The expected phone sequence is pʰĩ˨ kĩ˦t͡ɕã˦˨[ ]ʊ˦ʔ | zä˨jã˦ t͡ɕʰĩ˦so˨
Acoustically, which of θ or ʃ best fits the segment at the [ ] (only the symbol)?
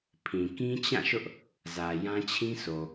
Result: ʃ